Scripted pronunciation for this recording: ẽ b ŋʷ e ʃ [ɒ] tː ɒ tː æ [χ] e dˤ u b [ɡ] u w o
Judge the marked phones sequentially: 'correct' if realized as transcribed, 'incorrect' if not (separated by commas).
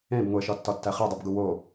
correct, correct, correct